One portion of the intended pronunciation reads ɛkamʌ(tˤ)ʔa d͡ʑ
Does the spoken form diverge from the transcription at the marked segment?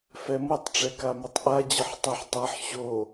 no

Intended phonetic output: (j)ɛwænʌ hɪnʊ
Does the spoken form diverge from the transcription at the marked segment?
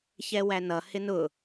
yes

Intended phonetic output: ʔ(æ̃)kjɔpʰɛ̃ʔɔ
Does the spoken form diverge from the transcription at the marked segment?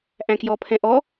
no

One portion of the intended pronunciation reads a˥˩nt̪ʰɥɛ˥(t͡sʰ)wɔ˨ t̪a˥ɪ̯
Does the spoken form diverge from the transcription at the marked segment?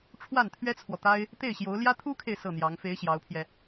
no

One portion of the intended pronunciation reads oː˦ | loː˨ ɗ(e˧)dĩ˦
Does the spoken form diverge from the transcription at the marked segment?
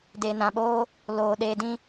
no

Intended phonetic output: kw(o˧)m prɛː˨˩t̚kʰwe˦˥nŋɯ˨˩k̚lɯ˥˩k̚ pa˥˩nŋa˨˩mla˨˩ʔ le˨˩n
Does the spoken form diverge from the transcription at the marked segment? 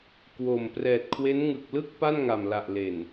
yes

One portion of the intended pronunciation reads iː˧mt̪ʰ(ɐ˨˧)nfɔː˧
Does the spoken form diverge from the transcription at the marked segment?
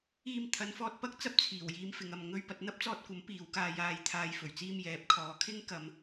no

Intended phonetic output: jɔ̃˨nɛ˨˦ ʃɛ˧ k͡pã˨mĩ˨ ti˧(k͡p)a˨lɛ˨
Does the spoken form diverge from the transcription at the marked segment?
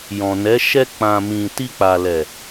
no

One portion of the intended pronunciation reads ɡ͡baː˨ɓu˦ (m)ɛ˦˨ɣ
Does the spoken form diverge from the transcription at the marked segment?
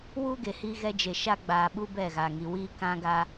yes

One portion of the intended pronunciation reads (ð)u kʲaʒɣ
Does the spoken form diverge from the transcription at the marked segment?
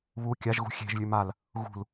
yes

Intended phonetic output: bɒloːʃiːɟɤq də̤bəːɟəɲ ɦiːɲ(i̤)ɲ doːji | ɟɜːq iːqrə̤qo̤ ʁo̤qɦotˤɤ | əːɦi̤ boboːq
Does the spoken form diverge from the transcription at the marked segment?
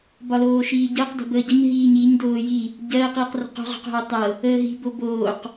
yes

